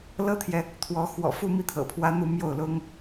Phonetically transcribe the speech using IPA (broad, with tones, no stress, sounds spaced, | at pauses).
l ɤ˥ t̪ʰ j ɛ˨ | t̪ʰ w ɔ˧˥ x w ɔ̰˨˩ f u˥˧ m i˥˩ t̪ʰ ɤ̰˨˩ pʰ w ä˥ n̪ u˥˧ m j o˥˩ ʊ̯ l ʊ˥ ŋ